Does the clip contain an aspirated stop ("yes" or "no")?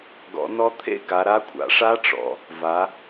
yes